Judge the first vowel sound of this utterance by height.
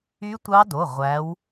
high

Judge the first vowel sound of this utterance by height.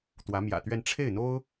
low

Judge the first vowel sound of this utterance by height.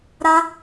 low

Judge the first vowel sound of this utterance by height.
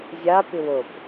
low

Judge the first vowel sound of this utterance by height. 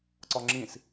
low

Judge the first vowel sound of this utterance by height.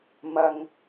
low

